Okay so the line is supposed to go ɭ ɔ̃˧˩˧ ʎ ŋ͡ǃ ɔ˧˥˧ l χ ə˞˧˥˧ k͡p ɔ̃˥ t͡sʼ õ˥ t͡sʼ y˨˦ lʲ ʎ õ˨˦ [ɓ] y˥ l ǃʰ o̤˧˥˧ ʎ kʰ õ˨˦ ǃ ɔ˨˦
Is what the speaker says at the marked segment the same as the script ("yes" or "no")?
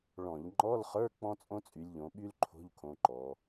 yes